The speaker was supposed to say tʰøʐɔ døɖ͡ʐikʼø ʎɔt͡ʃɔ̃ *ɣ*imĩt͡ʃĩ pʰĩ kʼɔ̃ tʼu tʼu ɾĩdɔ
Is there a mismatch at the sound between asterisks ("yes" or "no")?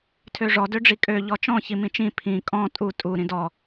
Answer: yes